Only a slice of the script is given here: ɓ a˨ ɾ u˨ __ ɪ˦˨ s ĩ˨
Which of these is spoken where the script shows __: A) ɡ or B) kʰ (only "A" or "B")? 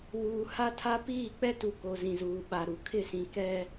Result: B